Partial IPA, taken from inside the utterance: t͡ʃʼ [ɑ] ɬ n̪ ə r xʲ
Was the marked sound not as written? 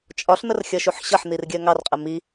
yes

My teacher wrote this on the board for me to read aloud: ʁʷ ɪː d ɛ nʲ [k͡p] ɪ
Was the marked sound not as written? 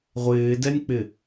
no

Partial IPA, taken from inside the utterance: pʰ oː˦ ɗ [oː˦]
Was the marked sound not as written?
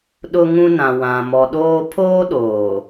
yes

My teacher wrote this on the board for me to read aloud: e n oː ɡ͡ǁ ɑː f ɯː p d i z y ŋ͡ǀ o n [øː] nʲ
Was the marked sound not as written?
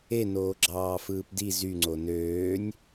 no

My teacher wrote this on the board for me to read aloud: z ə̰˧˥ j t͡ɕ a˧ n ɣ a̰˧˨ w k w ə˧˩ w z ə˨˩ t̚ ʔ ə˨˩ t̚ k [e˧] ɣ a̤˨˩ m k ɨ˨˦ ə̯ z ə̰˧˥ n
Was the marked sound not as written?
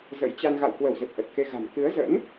no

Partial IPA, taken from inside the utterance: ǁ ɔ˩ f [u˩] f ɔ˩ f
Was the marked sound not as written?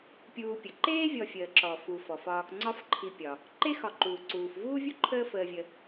no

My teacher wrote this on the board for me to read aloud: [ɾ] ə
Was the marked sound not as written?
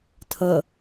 yes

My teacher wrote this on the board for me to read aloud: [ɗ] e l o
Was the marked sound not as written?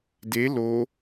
yes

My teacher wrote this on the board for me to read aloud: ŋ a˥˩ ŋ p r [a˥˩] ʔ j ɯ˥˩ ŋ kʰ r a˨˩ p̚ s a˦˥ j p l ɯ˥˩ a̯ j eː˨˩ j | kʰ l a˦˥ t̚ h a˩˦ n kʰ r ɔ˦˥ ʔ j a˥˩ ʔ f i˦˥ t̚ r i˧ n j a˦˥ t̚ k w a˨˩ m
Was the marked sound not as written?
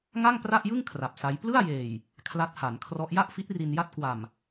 no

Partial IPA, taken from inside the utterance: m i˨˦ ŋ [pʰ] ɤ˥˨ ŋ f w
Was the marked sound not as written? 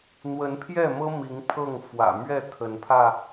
no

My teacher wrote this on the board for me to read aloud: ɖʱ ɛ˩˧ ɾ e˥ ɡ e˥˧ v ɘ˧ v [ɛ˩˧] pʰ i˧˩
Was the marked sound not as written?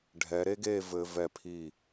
yes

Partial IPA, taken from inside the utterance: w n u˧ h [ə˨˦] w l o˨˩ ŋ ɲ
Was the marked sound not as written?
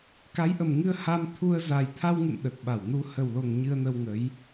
yes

